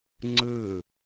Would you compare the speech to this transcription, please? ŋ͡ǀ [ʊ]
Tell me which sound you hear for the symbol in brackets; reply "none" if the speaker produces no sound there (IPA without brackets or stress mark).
ɯ